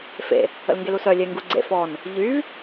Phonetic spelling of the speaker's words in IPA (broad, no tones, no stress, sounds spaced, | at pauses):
f ḛ | ə̰ l ŋ ɡ e l u s œ lʲ e ŋ ɡ u ɡ͡ǀ ḛ f ɔ n | ʎ y v